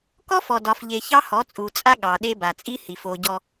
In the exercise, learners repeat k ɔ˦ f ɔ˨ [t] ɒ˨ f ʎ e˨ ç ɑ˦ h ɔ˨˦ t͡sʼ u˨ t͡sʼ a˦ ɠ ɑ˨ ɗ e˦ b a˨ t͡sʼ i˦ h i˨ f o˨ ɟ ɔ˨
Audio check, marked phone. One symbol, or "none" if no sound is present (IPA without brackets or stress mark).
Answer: d